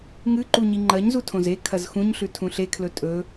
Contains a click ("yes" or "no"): yes